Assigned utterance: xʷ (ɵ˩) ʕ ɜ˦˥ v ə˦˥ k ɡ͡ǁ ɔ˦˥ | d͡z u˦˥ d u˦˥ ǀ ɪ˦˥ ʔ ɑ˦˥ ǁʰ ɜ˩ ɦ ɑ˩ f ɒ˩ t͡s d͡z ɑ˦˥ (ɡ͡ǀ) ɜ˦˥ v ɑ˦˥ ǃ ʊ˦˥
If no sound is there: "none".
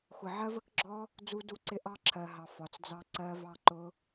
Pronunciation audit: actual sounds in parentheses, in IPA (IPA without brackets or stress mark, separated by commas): ə˩, ǀ